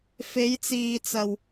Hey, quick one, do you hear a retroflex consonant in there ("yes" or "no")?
no